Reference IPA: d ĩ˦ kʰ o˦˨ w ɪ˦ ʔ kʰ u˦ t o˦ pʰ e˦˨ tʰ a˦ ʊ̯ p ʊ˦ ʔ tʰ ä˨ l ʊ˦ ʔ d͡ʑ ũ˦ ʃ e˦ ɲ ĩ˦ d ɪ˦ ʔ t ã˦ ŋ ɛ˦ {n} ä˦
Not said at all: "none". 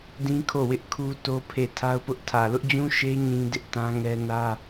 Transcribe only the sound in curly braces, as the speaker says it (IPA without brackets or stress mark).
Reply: n